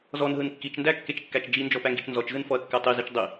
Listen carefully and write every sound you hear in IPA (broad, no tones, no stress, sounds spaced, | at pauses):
z ɔ n ɦ ɯ n kː i t͡ʃ n d æ kː e t͡ʃ kː æ t͡ʃ d͡ʒ i n d͡ʒ ɔ p æ ŋ ɡ i t͡ʃ n z ɔ t͡ʃ z ɯ n f ɔ ɐ̯ kː æ tˤ i z i t͡ʃ dˤ i